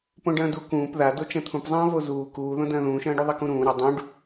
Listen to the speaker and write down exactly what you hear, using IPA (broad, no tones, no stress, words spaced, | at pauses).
põɖɐ̃ːdu kũːp ðado t͡ʃɐ̃t̪ʰũpzˤɐ̃ː vozuː kuːðõ dɐ̃ːðũːʃɐ̃ːɖu ðˤɐkũɾũː ɾɐ dˤũɖ